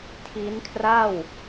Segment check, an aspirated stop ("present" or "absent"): present